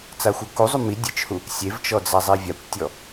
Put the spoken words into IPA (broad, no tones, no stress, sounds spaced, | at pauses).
t͡s a xʷ ɤ k u zˤ u m i dʲ ɯ t͡ʃ h u | sʲ e v t͡ʃ ɔ d͡z a zˤ i vʲ a kʷ tʲ ɔ